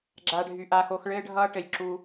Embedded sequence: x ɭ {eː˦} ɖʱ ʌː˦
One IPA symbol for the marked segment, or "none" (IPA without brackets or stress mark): ɘː˦